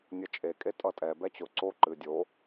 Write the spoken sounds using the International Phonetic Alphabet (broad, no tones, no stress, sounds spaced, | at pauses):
nʲ ʌ t͡ʃʼ e kʼ e tʼ ʌ tʼ ɛ b ɛ t͡ɕ ʊ ǀ o ǃ ɨ dʲ o